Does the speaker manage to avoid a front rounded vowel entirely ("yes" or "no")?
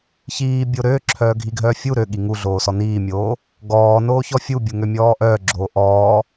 no